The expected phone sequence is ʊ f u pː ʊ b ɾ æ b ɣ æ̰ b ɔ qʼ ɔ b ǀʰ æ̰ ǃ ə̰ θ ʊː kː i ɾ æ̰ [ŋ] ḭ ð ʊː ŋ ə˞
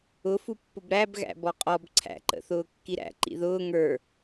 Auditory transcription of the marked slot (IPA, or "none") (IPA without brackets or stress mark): ǃ